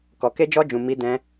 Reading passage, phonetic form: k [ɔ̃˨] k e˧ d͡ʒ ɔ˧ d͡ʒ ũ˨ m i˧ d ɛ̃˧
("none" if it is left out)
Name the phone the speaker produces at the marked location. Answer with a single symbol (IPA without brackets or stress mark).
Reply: ɔ˨